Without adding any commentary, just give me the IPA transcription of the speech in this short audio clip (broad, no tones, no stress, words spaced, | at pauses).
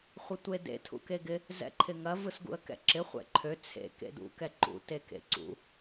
χʷɪtʷedḛ tʰṵkeɡɪ | zɛ̰ǃʰɪŋɐ vɯsɡṵə̯kɛ̰ǁɪ χʷɛ̰ǃʰø t͡sʰḛ kḛdṵ kɛǃṵ tekḛǀṵ